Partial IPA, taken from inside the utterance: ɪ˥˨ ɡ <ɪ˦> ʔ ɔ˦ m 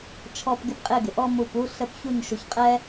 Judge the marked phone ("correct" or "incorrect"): incorrect